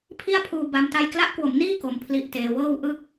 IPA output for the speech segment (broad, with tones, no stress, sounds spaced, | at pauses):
pʰ i˥˩ a̯ pʰ uː˧ b a˦˥ m t a˥˩ j k l a˦˥ ʔ k w o˩˦ m n iː˥˩ k o˧ m pʰ l i˦˥ ʔ t eː˧ w ɤː˥˩ w ʔ ɯ˥˩ k̚